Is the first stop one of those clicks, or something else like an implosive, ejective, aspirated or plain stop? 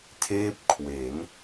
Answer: aspirated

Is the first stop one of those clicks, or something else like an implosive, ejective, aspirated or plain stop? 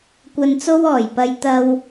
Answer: plain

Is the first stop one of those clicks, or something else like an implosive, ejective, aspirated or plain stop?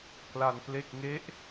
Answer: plain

